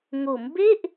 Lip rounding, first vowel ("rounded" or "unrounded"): rounded